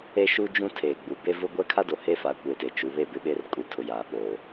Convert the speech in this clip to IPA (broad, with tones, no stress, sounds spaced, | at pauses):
e˦ ʃ u˦ d͡ʒ ũ˦ tʰ eː˨ ɡ͡b u˨ b e˦ v ʊ˦ ɡʷ ɛ˦ kʰ a˦ d o˨ h e˦ f a˨˦ kʷ eː˨ t e˨ t͡ʃ u˨˦ β e˦˨ b ɪ˦ ɓ e˦ r kʼ u˨ tʰ ʊ˨ j aː˨ ɓ oː˨